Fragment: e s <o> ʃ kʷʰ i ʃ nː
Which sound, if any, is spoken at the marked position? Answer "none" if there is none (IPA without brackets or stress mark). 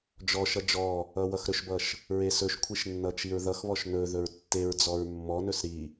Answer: ɵ